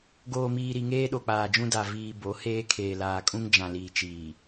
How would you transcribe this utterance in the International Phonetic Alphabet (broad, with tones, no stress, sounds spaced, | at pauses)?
ɡ oː˨ m iː˨ ɾ i˨ ŋ eː˦ ɗ o˨ k͡p aː˨ d͡ʒ ũ˦ d a˨ v iː˨ b o˨˦ h eː˦ kʰ eː˨ l aː˨ kʼ ũ˦ ŋ d͡ʒ ã˨ l iː˨ t͡ʃ iː˨